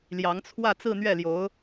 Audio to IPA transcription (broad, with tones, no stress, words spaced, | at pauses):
ljɑ˧˥ŋt͡sʰwä˥˧ t͡sɹ̩˥˧n̪ɥɛ˥˩ljo˧˥ʊ̯